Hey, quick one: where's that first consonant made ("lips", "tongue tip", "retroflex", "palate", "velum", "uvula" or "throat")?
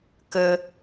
velum